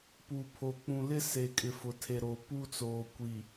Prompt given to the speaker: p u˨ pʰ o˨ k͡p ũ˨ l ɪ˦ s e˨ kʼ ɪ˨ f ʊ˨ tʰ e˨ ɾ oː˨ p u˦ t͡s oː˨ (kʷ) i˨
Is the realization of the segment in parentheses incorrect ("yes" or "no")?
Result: no